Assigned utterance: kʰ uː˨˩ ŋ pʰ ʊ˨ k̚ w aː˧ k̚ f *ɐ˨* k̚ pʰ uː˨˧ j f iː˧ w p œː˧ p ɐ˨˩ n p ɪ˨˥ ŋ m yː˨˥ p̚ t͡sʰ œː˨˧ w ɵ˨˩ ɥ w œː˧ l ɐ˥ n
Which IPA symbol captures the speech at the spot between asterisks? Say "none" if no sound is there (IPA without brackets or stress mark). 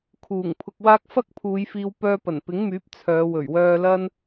ɐ˥